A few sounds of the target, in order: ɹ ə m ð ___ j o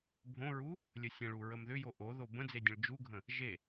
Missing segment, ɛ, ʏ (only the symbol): ʏ